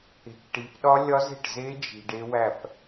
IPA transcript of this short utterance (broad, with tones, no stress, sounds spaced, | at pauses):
e̤˨ k ʈ i˨˥ p ɗ ɒ˦˥ lʲ ɒ˦˥ z e̤˥˩ ʈ z e˦˥ d͡ʒ i̤˨ ɖ e˦˥ w æ˥˩ p